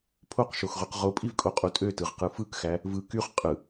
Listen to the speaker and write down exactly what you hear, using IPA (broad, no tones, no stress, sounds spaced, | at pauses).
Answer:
pʰ o q ʃ o x ʁ y q ʁ o pʼ i v kʼ o qʼ u tʼ ø t ɯ ʁ q ɯ f ɯ k x æ | v ɯ k y χ qʼ ɯ